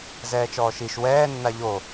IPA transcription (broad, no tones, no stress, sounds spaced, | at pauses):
z ɛː t͡ʃ ɔː ʃ i ʃ w ɛː nː a ʎ o